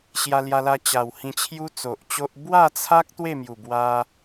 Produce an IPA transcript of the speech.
ɕ j a˧ l j a˧ l a˧ t͡ɕ a˨˩ w h ĩ˧ t͡ɕʰ j u˦ t͡s o˨ ʔ t͡ɕ o˦ ʔ b w a˥˧ t͡sʰ a˦ k̚ t̪ w e˥˧ m j u˨˩ b w a˧

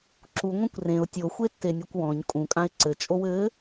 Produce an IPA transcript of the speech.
ǁ u ŋʷ ẽ kʷ r ẽ ʊ̯ tʲ o xʷ e tː e nʲ e kʷ w ɔ̃ ɲ kʼ ũ kʼ ã ɪ̯ ǀ ɘ t͡ʃʼ o w ɘ

